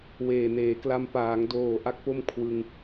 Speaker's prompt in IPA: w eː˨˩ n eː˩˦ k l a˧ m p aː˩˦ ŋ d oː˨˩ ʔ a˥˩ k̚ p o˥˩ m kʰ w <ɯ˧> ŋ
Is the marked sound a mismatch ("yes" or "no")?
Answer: no